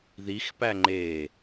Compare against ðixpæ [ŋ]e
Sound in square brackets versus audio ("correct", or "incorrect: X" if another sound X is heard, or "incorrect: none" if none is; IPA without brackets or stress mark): incorrect: ŋ͡ǃ